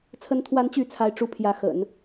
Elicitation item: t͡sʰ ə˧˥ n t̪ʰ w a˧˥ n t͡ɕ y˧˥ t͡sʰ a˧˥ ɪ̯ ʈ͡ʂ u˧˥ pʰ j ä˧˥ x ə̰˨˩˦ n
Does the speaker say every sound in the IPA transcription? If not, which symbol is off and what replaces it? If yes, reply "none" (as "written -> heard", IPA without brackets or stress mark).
none